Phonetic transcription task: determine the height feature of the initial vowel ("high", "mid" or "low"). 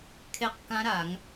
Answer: mid